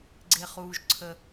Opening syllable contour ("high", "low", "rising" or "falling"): low